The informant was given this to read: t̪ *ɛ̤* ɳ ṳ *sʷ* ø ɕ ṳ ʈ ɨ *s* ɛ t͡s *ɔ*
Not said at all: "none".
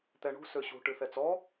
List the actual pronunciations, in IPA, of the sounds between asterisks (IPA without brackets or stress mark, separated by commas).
ɛ, s, θ, ɔ